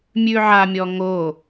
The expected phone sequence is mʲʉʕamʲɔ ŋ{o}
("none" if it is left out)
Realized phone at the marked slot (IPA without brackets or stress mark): o